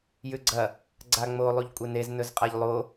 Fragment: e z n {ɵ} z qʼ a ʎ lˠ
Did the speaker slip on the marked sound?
no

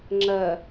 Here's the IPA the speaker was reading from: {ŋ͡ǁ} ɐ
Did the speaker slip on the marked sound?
no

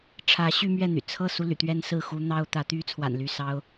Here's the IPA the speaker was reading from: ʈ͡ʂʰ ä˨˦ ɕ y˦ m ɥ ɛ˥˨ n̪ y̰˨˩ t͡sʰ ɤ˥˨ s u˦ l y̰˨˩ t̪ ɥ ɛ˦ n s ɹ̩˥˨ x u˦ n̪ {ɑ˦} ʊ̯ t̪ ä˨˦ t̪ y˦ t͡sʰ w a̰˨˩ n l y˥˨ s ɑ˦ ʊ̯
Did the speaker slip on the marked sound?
no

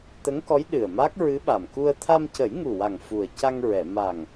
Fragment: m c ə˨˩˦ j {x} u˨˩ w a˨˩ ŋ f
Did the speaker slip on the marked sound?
yes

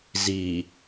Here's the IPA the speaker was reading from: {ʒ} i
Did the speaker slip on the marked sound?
yes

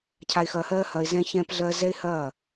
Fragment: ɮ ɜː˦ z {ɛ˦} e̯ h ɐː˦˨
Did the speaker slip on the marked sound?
no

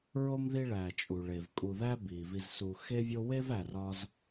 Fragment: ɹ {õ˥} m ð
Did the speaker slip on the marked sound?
yes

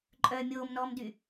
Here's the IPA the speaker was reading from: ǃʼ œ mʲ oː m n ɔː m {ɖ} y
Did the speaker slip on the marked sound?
yes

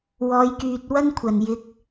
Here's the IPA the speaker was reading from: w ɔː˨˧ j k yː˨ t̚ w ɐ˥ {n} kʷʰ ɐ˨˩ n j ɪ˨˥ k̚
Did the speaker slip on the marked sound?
no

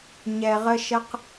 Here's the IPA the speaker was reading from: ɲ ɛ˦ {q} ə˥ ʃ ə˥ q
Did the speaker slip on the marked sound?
yes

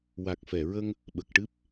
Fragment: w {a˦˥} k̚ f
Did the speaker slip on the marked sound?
yes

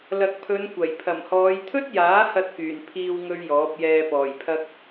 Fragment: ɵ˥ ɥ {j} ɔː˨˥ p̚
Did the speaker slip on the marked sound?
no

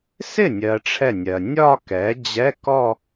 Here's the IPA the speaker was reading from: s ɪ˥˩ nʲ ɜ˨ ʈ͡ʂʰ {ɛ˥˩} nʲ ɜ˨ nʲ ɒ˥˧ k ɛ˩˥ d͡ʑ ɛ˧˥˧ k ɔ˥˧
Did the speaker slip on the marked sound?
no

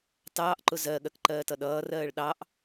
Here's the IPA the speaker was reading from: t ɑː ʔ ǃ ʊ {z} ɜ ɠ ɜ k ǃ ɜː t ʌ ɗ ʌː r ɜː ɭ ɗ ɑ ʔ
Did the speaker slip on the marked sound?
no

